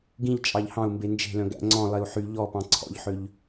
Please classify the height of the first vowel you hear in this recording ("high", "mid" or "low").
high